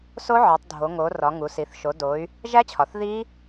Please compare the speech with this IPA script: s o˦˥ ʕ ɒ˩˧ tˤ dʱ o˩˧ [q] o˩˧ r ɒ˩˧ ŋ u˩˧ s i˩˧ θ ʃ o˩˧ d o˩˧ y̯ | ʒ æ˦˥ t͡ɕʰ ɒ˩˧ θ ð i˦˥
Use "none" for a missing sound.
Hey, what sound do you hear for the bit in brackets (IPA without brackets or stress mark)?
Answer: ŋ